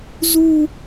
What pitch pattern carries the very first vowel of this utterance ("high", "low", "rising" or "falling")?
high